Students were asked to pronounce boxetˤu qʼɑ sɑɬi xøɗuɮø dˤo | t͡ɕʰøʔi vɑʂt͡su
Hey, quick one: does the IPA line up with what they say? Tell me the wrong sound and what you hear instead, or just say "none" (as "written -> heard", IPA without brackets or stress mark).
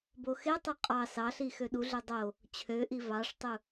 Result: t͡s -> tˤ